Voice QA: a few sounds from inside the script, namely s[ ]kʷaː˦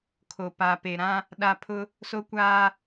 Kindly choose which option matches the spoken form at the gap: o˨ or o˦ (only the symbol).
o˦